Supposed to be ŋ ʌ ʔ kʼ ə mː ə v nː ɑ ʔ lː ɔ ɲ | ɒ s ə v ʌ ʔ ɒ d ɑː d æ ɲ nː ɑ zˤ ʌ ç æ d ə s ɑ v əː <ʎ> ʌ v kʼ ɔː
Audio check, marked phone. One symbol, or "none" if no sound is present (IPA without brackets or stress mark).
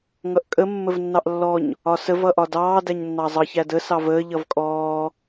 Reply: ʎ